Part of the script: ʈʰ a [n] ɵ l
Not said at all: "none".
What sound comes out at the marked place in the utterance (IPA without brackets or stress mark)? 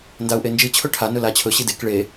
n